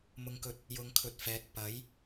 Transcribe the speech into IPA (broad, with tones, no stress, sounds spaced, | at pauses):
m ʊ˧ ŋ k ɵ˧ t̚ | j ʊ˨˧ ŋ kʰ ɵ˨ t̚ f ɛː˨ k̚ p ɐ˨˥ j